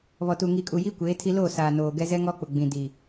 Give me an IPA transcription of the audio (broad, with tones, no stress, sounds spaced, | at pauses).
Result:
β ɔ˨ t u˨ ŋ i˨ kʼ u˨ j i˦ kʷ eː˨˦ tʰ i˦ l o˦˨ s aː˨ n oː˨ ɡ ɛ˦ z ɛ˦ ŋ ɔ˦ k͡p ʊ˨ ɡ͡b ĩ˨ d i˨